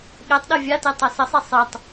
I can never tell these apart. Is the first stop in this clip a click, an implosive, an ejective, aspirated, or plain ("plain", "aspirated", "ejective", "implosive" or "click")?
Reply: implosive